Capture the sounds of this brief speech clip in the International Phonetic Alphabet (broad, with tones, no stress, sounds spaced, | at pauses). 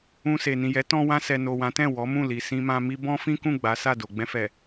ũ˧ s e˨ n ĩ˨ j ɛ˨˦ t ɔ̃˧ w ã˧ s ɛ˨ n o˨ w ã˨˦ t ɛ̃˦˨ w ɔ˨˦ m ũ˦˨ l i˨ s ĩ˧ m ã˧ m i˦ b ɔ̃˦ f ĩ˦ k ũ˦˨ ɡ͡b a˨˦ s a˦˨ d o˨ ɡ͡b ɛ̃˧ f ɛ˨